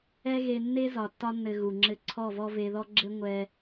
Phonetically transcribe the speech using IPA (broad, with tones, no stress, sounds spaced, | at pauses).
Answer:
ɛ˦ ɣ e˧ nː e˦ z ɒ˨ tː ɒ˧ nː ɘ˨ ɣ u˨ ŋ͡ǁ ɘ˧ ǀʰ ɔ˦˨ v ɔ˦ v e˧ ð ɔ˦ ɡ͡ǁ ɘ˦ ŋʷ ɛ˧